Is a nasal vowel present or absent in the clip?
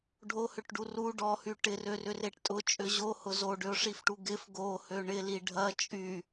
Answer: absent